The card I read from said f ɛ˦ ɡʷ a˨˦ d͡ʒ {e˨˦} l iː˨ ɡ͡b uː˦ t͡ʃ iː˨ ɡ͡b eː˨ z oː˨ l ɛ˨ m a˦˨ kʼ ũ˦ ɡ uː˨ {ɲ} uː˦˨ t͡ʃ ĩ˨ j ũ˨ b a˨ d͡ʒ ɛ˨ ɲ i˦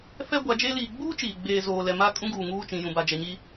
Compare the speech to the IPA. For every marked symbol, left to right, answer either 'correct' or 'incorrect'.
incorrect: e˦, incorrect: ŋ

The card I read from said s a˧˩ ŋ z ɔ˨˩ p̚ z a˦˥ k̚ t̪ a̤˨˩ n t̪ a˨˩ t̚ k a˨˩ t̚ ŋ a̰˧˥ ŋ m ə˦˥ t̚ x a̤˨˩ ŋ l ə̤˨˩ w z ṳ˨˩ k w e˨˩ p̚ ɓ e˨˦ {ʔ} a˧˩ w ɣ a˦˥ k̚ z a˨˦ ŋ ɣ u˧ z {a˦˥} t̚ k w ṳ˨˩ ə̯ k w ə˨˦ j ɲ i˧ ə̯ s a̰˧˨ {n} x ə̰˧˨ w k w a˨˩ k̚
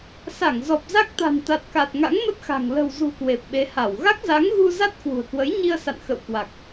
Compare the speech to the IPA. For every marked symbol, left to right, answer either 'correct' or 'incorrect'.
incorrect: h, correct, correct

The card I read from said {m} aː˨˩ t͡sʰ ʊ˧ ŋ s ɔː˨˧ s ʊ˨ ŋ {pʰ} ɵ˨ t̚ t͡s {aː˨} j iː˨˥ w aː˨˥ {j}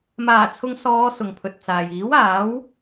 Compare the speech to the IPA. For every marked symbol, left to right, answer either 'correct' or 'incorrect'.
correct, correct, correct, incorrect: w

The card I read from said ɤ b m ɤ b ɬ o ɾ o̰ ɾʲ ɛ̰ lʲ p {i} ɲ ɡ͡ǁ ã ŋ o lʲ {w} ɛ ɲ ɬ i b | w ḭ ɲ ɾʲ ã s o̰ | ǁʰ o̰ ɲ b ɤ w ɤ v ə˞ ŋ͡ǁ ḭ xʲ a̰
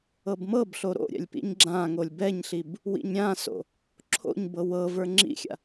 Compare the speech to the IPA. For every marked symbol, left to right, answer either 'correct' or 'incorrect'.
incorrect: ḭ, incorrect: b

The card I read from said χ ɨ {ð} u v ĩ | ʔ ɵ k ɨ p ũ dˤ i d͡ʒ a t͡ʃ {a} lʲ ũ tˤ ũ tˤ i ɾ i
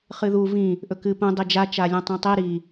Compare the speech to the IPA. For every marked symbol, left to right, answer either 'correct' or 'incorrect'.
correct, correct

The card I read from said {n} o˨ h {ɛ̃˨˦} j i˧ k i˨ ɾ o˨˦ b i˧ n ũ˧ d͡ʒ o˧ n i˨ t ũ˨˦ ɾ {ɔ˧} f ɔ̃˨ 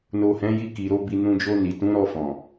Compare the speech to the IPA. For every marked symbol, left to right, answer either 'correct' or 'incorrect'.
correct, correct, correct

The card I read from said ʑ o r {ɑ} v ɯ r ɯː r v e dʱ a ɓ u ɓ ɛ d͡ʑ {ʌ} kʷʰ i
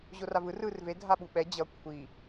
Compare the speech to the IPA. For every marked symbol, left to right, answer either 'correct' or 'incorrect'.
incorrect: a, correct

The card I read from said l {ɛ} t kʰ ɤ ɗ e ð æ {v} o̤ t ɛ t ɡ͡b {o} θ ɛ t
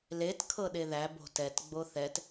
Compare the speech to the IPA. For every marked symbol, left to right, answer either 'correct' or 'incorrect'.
incorrect: e, incorrect: b, correct

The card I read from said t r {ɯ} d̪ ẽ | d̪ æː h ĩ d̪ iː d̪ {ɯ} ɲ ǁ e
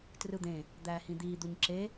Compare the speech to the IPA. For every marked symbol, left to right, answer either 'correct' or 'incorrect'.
correct, incorrect: u

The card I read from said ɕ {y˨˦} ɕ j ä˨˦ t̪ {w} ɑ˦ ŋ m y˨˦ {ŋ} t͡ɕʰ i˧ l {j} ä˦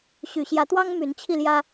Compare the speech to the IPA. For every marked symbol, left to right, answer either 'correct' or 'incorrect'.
incorrect: y˨˩, correct, incorrect: n, correct

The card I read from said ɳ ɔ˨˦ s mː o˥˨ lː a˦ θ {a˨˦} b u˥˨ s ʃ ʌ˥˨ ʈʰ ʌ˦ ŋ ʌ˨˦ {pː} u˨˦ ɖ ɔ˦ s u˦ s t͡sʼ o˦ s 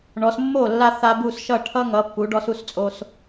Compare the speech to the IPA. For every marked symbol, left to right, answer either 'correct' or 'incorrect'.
incorrect: a˦, correct

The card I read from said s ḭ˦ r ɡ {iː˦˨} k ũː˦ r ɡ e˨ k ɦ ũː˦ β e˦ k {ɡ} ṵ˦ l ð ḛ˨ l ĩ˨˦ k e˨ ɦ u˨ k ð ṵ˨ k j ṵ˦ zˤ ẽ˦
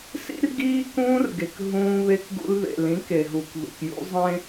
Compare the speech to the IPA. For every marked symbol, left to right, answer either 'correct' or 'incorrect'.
incorrect: iː˦, correct

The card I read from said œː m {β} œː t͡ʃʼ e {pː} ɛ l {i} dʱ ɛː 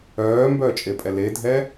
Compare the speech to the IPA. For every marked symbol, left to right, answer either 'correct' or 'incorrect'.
incorrect: b, incorrect: pʼ, incorrect: e

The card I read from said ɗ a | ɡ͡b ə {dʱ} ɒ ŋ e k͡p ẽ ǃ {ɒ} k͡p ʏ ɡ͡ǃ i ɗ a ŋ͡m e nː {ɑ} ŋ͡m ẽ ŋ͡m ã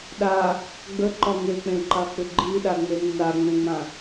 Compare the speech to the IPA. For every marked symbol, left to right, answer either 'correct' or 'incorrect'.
incorrect: ǃ, incorrect: ɑ, incorrect: a

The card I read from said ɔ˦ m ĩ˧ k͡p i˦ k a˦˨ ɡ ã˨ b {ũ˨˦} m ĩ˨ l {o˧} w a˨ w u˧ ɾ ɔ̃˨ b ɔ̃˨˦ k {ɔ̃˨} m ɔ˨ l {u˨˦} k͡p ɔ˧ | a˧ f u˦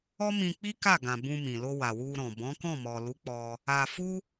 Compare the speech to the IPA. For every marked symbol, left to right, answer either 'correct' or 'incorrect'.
incorrect: ũ˧, correct, incorrect: ɔ̃˦˨, correct

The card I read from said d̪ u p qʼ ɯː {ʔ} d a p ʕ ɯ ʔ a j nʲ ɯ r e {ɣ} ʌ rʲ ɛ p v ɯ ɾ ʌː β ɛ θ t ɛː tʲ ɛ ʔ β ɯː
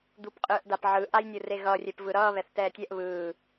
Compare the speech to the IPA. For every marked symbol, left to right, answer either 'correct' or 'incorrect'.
correct, correct

